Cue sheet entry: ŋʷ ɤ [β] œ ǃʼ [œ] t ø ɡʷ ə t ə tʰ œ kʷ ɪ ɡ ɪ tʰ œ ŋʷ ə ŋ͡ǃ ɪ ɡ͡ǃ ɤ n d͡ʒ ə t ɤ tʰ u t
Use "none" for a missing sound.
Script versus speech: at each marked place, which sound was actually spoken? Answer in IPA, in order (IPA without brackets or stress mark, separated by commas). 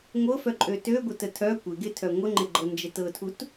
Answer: f, ø